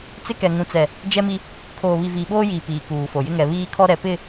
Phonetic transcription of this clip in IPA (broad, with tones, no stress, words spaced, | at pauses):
t͡sɪ˦kɛ˨ ŋũ˨t͡sɛ˨ | d͡ʒɛ˦mi˦ | kʰoː˨βi˨ viː˨ɓoː˦jiː˨ piː˨kuː˨fo˨ jɪ˦ŋɛ˨ βiː˦kʰɔ˦ ɾɛ˨pɪ˦˨